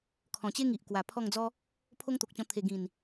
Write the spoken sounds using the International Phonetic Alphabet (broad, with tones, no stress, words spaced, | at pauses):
kʰɔ̃˨˩t͡ɕe˦ŋi˨ʔ kwa˨˩pʰɔ˥˧ŋd͡zɔ˦ | pʰo˦ŋt̪o˨k̚t͡ɕɔ̃˧ t̪ʰe˨˩ɡĩ˨˩n